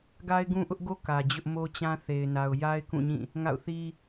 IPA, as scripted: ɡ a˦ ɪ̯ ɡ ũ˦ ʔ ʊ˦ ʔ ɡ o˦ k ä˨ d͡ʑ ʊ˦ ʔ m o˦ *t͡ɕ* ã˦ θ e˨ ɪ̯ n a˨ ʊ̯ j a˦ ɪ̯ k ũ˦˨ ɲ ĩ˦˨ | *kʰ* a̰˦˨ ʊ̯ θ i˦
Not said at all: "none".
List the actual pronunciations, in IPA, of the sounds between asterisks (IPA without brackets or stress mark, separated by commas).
t͡ɕ, ŋ